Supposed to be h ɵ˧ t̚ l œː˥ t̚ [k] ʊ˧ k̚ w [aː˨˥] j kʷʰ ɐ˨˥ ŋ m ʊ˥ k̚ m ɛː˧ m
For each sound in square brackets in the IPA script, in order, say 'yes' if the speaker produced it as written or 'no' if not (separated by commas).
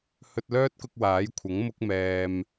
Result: yes, yes